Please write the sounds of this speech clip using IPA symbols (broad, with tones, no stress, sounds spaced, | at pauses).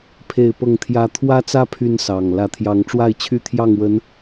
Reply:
pʰ e˥˨ ɪ̯ p ɤ˥˨ ŋ t̪ʰ j ä˦ t̪ʰ w ä˦ t͡s ä˦ pʰ y˦ n s ɑ˨˩ ŋ l ä˨˦ t̪ʰ j ɑ˨˦ ŋ ʈ͡ʂ w a˥˨ ɪ̯ t͡ɕʰ y˥˨ t̪ʰ j ɑ˥˨ ŋ w ə˨˦ n